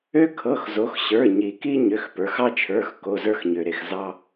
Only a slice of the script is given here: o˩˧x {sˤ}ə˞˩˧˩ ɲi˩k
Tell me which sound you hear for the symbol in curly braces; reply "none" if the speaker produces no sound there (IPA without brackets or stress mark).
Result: ɕ